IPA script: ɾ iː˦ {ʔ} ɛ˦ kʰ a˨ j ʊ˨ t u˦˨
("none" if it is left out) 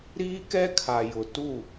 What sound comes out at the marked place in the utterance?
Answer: k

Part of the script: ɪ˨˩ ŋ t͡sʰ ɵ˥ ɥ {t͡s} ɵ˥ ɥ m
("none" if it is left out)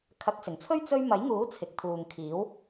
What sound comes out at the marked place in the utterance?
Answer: t͡s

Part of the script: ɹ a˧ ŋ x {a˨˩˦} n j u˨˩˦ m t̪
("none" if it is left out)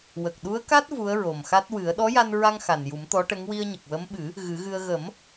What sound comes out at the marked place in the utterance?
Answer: a˨˩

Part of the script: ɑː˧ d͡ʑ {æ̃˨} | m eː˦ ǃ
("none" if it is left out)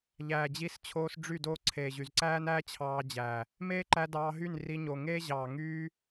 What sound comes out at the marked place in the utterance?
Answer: æ˨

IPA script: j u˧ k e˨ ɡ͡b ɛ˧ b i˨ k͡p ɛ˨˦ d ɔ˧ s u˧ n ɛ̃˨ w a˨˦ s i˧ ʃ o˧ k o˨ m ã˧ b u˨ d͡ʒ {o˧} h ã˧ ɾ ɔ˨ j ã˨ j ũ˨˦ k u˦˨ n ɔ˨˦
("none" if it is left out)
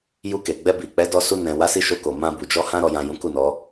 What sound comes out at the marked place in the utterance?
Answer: ɔ˧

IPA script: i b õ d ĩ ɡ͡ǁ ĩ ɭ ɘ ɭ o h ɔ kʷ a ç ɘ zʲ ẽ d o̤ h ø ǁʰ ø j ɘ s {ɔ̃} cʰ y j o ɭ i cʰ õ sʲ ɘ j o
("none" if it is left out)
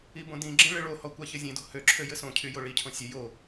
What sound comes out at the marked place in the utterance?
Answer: õ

